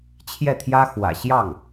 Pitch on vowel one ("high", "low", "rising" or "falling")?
falling